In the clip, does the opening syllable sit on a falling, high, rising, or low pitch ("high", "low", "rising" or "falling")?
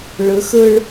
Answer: rising